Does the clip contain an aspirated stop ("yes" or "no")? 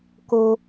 no